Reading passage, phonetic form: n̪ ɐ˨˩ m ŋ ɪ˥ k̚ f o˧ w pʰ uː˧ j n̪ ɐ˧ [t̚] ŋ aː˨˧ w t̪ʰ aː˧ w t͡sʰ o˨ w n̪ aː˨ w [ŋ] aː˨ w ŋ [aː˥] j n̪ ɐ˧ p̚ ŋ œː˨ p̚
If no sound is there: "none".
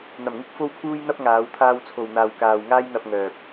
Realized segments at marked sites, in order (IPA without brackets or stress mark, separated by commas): p̚, k, aː˥